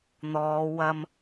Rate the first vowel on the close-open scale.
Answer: mid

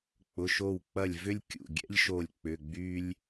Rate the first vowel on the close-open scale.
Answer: close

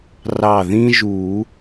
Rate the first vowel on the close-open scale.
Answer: open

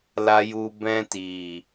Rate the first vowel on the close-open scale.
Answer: open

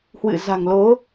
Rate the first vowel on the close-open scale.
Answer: close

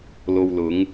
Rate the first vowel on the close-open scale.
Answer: mid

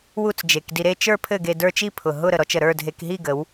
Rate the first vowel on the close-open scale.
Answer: close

